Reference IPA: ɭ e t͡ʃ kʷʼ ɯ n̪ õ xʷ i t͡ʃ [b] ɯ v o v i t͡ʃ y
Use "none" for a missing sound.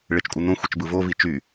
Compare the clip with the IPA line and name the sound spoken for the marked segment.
b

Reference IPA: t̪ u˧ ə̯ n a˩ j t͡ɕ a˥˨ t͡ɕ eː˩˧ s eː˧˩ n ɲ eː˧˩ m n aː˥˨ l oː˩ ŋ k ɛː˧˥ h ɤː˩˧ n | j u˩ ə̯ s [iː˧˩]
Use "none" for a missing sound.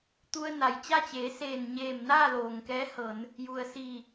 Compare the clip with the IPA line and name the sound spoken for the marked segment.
iː˧˩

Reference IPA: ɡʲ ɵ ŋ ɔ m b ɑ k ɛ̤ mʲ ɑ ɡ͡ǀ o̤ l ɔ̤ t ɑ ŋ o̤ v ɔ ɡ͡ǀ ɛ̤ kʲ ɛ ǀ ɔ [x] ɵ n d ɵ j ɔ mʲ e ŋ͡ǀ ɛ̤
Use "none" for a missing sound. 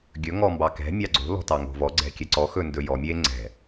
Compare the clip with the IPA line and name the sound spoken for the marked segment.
x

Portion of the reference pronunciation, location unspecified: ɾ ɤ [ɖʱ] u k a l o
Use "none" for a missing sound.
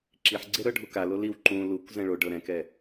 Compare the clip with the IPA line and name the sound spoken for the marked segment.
ɖʱ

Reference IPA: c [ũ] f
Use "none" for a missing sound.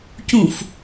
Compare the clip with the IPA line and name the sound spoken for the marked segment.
ũ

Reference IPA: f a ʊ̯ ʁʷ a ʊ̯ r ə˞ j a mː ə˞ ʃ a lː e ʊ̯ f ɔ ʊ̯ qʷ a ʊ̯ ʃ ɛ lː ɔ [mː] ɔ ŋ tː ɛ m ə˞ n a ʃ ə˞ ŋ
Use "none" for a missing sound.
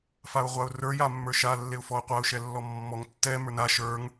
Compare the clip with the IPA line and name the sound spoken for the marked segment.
mː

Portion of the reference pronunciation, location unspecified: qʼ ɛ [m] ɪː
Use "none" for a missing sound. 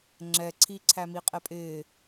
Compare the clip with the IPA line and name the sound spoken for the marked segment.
pʼ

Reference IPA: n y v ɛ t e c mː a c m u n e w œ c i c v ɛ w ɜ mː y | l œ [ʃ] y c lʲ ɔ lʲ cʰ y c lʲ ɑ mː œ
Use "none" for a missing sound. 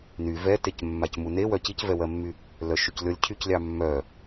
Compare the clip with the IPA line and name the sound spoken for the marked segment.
ʃ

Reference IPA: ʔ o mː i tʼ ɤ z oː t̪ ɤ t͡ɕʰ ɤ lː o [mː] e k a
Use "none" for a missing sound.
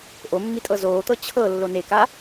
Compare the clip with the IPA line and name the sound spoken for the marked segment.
n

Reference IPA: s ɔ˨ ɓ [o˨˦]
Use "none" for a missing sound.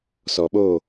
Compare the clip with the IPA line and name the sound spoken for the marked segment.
o˦˨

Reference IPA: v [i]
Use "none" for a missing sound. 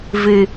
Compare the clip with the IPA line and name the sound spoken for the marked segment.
ɨ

